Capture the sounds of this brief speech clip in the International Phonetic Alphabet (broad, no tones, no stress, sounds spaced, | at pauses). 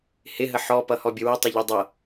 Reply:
h ɪ ɦ ə ħ ɔ p ʌ h ɔ bʲ ə w ʌ tˤ ɪ ʎ ʌ dˤ ʌ